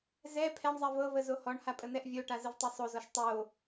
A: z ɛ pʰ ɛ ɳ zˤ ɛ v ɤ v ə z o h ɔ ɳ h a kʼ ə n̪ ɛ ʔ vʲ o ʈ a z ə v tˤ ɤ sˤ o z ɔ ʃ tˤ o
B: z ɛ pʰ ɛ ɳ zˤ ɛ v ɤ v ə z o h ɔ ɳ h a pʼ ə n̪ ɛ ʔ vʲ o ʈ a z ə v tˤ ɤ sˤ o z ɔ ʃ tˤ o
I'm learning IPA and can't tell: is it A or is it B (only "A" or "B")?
B